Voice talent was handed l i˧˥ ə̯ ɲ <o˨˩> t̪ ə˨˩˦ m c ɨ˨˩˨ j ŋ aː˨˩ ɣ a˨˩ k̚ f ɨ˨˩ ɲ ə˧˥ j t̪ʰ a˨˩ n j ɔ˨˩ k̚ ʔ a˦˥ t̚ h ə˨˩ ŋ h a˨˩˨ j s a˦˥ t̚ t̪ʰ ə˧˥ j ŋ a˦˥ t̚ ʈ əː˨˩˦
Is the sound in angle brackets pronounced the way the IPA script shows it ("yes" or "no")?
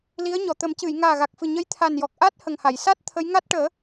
no